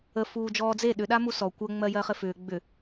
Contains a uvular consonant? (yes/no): yes